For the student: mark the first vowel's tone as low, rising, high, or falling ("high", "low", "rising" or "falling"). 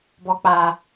low